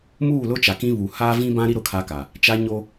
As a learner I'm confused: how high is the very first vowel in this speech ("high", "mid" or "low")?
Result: high